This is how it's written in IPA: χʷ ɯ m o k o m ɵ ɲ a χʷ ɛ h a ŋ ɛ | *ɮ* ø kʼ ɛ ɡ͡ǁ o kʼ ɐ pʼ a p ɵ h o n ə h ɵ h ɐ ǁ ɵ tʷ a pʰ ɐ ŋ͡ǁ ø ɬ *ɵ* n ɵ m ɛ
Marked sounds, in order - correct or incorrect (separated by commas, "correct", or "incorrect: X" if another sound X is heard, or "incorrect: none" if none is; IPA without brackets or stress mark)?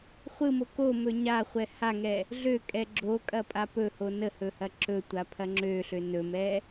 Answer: correct, incorrect: ø